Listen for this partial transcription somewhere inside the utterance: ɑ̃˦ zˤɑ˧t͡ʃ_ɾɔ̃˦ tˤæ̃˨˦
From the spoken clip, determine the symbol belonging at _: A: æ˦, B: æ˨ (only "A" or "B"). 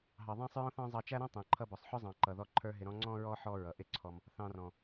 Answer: A